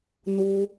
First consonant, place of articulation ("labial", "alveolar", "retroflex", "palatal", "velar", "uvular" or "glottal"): alveolar